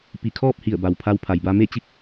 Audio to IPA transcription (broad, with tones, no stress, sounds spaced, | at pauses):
p i˧˩ kʰ ɔː˥˨ p̚ h i˧˩ ə̯ b a˩ w pʰ a˧ w pʰ a˩ j b a˧ m e˥˨ t͡ɕ i˥˨ k̚